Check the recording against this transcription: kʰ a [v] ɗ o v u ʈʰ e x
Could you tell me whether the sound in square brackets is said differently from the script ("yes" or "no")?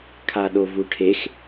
yes